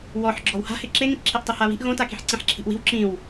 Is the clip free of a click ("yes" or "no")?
no